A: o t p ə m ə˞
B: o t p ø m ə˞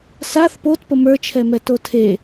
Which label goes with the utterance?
A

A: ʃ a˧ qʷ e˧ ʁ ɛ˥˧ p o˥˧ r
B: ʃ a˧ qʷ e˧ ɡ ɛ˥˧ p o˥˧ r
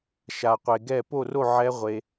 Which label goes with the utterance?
B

